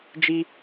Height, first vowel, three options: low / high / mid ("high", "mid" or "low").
high